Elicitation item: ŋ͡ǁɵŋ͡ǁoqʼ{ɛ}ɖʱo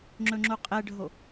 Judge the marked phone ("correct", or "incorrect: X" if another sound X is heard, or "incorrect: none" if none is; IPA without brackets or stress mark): correct